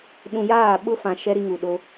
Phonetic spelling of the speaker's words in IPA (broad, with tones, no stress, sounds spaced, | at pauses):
ɗ ũ˨ j aː˦˨ ɓ ʊ˦ f ã˨ ʃ ɛ˦ ɾ i˦ ŋ u˨ ɗ o˦